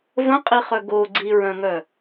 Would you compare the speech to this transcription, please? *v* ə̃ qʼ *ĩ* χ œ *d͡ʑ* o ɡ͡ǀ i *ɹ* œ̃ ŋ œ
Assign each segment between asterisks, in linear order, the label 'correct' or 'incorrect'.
correct, incorrect: i, incorrect: ɡ, correct

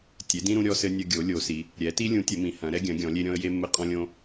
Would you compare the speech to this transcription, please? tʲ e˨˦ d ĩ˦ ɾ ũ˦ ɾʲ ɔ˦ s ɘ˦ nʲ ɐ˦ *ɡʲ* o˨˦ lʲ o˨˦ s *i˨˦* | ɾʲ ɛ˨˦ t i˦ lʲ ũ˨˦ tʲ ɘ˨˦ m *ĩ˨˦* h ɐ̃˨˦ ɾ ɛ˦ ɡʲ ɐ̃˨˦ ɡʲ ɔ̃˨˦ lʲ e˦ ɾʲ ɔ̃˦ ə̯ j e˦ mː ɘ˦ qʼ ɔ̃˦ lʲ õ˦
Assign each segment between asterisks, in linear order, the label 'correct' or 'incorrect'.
correct, correct, correct

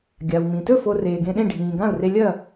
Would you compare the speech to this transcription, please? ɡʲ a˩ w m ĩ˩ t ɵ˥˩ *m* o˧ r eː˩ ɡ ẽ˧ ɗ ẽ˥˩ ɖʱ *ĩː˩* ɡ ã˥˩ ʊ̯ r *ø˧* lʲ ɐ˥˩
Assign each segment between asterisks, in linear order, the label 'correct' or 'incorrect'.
incorrect: f, correct, incorrect: e˧

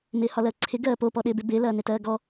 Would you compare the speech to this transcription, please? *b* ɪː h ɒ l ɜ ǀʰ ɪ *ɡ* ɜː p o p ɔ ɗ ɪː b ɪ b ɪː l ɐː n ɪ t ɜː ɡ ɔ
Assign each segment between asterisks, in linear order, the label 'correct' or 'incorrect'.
incorrect: m, correct

